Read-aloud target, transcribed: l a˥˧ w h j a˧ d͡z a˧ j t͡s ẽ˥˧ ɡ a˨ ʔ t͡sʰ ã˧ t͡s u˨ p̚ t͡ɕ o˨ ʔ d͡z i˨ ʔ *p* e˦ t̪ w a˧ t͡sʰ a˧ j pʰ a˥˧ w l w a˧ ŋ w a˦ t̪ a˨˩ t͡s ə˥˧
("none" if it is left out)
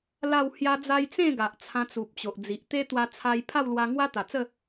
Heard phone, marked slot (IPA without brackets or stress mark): t̪